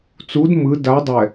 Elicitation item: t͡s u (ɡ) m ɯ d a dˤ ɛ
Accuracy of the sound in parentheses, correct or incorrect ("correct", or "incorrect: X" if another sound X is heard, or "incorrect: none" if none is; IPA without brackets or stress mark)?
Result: incorrect: d